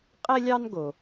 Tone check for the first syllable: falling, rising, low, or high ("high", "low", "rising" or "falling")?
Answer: high